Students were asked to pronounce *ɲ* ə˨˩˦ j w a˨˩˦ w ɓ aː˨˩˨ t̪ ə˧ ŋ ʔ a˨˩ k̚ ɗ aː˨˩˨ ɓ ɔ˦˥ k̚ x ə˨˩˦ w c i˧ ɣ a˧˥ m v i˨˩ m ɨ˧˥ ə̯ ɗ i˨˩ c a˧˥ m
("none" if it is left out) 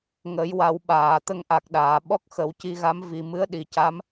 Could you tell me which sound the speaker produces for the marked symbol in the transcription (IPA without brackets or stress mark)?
ŋ